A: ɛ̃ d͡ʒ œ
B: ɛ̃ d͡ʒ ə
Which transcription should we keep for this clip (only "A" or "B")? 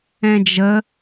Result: B